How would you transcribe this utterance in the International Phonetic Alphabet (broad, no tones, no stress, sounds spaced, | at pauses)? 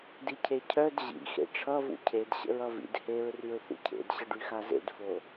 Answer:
d i cʰ e cʰ œ d ʑ ḭ x ḛ ʈ͡ʂʰ ʌ v ṵ cʰ e d ɕ ə̰ ɹ ʌ v ḭ d h e ɹ r y ɹ θ ṵ cʰ ḛ d ɕ ə ɖ y x a z ḛ d f o